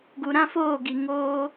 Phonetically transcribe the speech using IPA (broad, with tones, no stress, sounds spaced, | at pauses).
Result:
ɡ u˨ ɾ ã˦ f oː˦˨ ɡ i˨ ŋ oː˧